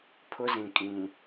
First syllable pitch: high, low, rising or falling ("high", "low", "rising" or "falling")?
high